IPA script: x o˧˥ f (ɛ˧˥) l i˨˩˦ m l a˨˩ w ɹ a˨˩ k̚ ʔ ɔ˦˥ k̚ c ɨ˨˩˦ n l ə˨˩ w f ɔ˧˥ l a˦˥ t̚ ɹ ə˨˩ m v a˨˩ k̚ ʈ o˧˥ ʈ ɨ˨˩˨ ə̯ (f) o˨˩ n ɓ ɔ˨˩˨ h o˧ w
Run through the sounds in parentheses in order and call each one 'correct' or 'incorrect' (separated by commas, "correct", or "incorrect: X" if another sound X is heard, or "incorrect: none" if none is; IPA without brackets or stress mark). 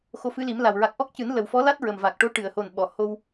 incorrect: ɨ˧˥, incorrect: h